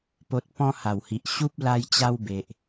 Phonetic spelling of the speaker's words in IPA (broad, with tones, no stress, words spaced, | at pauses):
po˨t̚ pɔ̃˧ha˨˩whi˨ʔ ɕu˦p̚ la˧jt͡ɕa˧w be˨ʔ